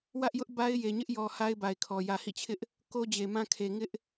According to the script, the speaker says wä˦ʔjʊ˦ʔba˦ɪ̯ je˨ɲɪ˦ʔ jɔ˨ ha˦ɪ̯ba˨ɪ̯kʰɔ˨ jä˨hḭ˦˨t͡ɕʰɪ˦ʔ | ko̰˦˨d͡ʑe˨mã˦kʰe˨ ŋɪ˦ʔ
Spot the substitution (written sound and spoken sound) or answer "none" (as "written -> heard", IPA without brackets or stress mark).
o̰˦˨ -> o˦